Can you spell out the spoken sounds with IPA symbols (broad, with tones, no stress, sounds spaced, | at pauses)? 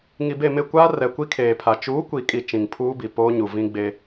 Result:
ŋ i˨ b e˦˨ m ɪ˦˨ kʷ aː˦ r ɛ˨ kʷ i˦ kʰ eː˨ pʰ a˨ t͡ʃ uː˨˦ kʷ i˨ kʼ i˨ t͡ʃ ĩ˨ ŋ pʰ uː˦ b i˨ p oː˦ ɲ u˨ v ĩ˦ ɡ͡b e˦